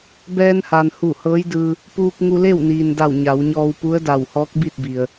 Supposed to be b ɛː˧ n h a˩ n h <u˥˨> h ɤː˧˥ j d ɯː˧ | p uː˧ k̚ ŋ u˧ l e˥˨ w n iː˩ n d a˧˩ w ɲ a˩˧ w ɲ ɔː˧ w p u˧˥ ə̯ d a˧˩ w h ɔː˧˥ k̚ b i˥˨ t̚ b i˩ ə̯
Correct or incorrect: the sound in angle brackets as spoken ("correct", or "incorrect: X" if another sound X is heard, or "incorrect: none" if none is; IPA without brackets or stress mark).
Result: incorrect: u˧˩